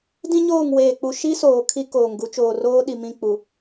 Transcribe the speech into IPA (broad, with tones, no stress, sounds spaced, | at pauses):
d ĩ˦ ɲ oː˦˨ ŋ w eː˨ k͡p u˨ ʃ i˦ s oː˨ kʰ i˦ k oː˨ ŋ ɡ u˦ t͡ʃ oː˨ r oː˦ ɗ i˨ m ĩ˦˨ k͡p u˨